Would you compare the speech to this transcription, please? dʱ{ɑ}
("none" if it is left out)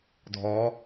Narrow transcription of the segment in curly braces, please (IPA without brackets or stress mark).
ɔ